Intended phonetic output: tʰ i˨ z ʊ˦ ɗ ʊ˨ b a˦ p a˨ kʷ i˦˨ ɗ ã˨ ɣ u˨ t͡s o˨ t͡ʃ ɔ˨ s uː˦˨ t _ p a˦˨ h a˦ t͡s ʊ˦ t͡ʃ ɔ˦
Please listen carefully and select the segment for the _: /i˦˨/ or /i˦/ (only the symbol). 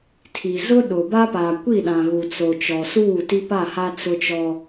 i˦